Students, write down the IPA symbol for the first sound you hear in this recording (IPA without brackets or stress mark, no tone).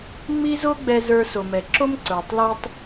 ŋ͡m